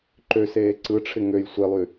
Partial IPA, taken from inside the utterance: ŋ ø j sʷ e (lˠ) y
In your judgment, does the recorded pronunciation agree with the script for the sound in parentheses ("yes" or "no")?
yes